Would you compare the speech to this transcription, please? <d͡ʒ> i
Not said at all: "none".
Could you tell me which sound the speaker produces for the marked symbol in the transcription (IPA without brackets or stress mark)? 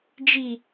d͡ʒ